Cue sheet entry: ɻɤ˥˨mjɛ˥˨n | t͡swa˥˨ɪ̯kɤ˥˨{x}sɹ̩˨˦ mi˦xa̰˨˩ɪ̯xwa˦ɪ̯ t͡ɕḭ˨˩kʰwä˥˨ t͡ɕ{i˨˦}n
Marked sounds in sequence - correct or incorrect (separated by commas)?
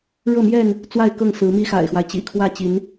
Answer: incorrect, correct